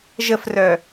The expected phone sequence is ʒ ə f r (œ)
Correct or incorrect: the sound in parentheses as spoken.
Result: correct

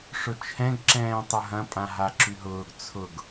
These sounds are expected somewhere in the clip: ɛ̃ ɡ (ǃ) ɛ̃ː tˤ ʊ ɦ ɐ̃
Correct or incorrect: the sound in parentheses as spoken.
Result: incorrect: ǁ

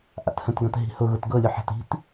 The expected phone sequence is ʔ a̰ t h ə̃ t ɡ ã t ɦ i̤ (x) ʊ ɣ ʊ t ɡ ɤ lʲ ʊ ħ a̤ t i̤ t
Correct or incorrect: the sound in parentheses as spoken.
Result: incorrect: h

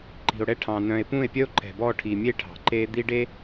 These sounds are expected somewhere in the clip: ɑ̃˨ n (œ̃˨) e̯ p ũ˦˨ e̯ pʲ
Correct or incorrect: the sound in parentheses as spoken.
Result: correct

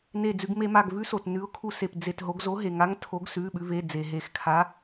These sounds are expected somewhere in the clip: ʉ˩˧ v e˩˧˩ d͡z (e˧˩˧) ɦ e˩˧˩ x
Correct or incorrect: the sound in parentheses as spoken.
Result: incorrect: e˩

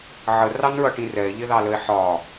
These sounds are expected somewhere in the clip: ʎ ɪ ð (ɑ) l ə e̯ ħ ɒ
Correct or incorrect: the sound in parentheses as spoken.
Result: correct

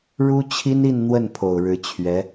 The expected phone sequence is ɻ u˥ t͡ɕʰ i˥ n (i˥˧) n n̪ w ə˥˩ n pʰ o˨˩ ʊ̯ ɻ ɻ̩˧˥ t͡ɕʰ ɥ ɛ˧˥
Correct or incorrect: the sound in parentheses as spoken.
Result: correct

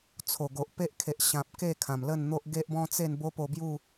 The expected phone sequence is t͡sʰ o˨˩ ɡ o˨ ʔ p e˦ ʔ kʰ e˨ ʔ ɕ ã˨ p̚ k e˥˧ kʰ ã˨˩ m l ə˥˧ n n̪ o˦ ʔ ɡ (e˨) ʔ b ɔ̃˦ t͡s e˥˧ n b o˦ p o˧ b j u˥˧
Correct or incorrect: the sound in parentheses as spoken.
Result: incorrect: e˦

